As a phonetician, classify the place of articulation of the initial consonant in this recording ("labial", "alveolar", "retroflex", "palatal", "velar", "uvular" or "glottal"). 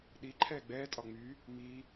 alveolar